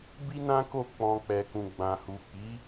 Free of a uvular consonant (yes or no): yes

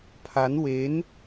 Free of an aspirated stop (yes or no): no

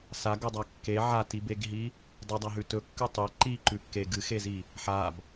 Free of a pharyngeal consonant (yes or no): no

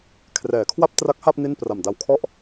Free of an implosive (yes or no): yes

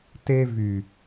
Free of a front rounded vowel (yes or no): no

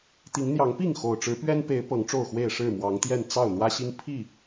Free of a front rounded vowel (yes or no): yes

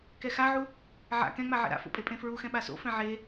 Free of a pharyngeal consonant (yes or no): no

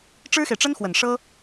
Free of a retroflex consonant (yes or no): no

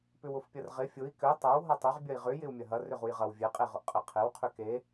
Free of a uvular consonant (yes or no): no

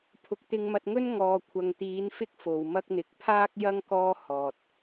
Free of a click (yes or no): yes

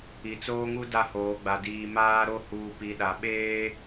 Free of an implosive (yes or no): no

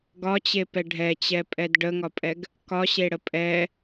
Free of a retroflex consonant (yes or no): no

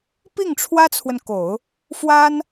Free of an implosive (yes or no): yes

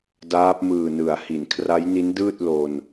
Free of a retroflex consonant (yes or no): yes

